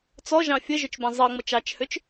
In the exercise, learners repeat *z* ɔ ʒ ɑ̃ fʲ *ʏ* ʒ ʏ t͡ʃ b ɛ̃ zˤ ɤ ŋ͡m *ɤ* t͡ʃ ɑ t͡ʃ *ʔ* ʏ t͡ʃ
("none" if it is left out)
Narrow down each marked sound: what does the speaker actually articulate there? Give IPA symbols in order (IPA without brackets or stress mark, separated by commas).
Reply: t͡s, ə, ɤ, h